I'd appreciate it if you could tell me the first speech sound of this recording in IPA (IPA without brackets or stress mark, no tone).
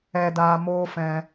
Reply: ɛ